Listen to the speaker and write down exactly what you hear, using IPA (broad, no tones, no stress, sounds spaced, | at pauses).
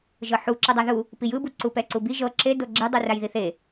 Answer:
ʒ ɤ ħ u ǁ ɯ dˤ a ð u | p i j ɯ b u ǀ u p ɛ ǀ u b i ʒ ɤ ǁ e d o ɡ͡ǁ e dˤ u r a j ð i θ e